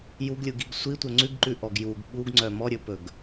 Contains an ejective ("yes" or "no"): no